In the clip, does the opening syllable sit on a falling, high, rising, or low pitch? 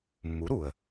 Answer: rising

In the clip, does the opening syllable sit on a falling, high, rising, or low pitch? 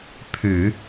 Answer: low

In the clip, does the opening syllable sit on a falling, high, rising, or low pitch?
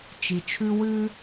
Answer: low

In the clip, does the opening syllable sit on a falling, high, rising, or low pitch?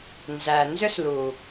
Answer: low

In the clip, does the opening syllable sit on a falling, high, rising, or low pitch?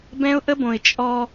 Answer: high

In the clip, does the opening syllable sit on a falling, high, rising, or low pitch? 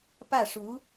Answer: falling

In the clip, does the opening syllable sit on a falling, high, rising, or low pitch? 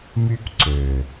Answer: high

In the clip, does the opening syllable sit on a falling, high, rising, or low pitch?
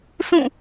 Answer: falling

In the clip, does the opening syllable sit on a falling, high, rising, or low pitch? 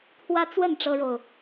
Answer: high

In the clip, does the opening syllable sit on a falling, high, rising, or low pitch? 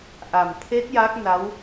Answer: low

